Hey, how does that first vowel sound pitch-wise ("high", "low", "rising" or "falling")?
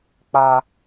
high